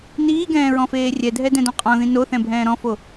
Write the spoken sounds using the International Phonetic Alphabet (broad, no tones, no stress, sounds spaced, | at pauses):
n iː ɡ ɛ̃ː ɹ ɔ̃ f eː rʲ ɛ dʱ ɛ d ɛ̃ d ɔ̃ qʼ ɔ̃ ð ĩ n o θ ɛ̃ bʱ ɛ̃ː ɾ ɔ̃ f o